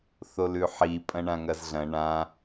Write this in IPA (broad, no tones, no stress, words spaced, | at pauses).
θolʉħi pʼɐ̃ɳãŋɐzɮɐ̃ ɳã